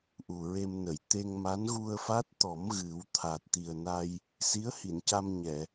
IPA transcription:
ʔ u˨˩ ɹ e˧ m n ə˨˩˨ j t̪ e˧ ŋ m a˧˥ n ɣ u˧ ə̯ f a˦˥ t̚ t̪ ɔ˨˩˦ m ɣ ɨ˨˩˦ w t̪ʰ aː˨˩ t̚ t̪ i˨˩ ə̯ n a˧ j | s i˧˥ ə̯ h i˨˩˨ n c a˧ m ɲ ɛ˨˩˨

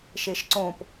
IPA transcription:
ʃ e ʃ ǀ õ p

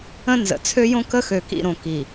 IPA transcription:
ə̃˦ n z ə̰˨ t͡sʰ ø˦ j õ˦ k ə˦ x ø˨ k ḭ˨ ɾ õ˨ k i˨

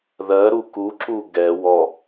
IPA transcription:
ð ɜ ɾ u k u ǁ u ɡ ɛ w ɔ

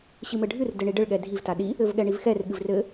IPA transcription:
ɕ ɨ m ɘ ɖʱ ɨ r d ɘ ɳ i ɖ ɘ ɭ ɠ ɛ dʱ i v t a ɗ i | ɘ v ɠ ɛ ɳ i v x ɛ r ɠ ɨ v r ɘ

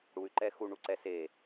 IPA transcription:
ɽ u y̯ ǃ ɛ x u ɳ u ǀ ɛ s e

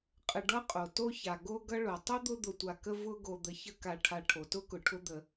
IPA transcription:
qʼ ə˨ ɖ ʌ˥ qʼ o˩ t o˦ ç a˩ ɡ o˥ ɡ ʌ˥ ɭ o˩ tˤ ʊ˥ d̪ ʊ˦ d̪ ʊ˨ tʷ a˨ k ə˦ v ʊ˦ ɡ o˨ d̪ ə˨ ç ə˦ k a˨ ʈʰ a˨ ʈʰ o˩ t ʊ˥ k ʊ˩ ʈʰ ʊ˦ d̪ ə˨

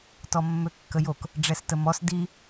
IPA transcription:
t ɔ mː ø kː ə j o k | ɖ͡ʐ ɛ s t ə m ɔ s d i

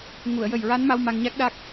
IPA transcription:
ŋ u˨˩˨ ə̯ j ə˨˩ j ɹ a˧˥ n m a˧ w m a˧ ŋ ɲ a˦˥ k̚ ɗ a˦˥ k̚

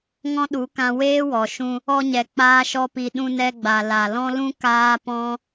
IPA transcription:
ŋ ɔ̃˦ ɗ u˨˦ k ã˧ w eː˦ w ɔ˨ ʃ ũ˧ | ɔ˧ ɲ ɛ˨ k͡p aː˦ ʃ ɔ˦ p i˧ ɗ ũ˧ n ɛ˧ ɡ͡b a˨ l a˨ l ɔ̃˦ l ũ˦ k aː˦ p ɔ̃˦

